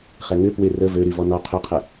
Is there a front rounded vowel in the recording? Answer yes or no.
yes